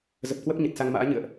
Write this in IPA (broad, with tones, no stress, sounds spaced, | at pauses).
z ə˨˩ p̚ k w ə˦˥ p̚ ɲ ə˨˩ t̚ s a˧ ŋ m a̰ː˧˥ ɲ ɨ̰˧˨ ə̯ ʔ